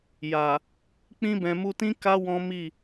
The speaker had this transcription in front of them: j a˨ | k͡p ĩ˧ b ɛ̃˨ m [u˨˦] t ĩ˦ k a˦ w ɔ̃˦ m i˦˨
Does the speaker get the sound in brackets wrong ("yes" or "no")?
yes